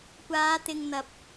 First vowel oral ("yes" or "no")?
yes